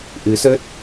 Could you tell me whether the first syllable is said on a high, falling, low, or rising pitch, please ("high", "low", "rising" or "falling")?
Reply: rising